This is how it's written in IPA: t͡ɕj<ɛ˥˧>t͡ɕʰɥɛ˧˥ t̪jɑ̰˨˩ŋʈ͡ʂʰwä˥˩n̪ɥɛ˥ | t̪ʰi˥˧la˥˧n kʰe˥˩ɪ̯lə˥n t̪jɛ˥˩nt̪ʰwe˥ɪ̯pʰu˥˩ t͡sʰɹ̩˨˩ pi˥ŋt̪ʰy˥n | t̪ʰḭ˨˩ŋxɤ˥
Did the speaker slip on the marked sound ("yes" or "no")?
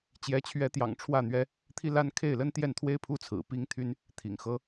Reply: yes